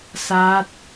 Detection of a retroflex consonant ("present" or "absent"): absent